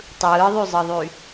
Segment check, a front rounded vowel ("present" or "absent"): present